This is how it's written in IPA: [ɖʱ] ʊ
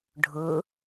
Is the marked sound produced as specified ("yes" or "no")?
yes